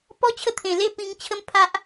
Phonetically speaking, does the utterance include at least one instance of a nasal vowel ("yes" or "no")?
yes